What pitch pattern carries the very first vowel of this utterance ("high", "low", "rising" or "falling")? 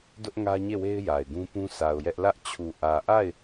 high